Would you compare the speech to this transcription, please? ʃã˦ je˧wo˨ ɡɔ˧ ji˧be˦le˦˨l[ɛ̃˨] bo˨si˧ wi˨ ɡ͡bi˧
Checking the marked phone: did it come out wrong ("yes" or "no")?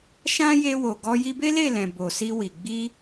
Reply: no